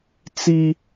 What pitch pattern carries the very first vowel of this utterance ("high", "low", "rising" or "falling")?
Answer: high